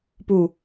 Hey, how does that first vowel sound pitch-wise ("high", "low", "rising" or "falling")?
low